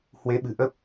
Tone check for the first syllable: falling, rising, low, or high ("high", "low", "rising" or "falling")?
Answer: rising